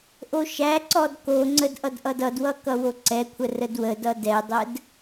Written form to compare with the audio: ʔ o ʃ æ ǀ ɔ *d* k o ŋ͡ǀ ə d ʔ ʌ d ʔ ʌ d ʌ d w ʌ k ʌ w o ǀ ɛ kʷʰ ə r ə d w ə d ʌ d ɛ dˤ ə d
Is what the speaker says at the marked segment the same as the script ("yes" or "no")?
yes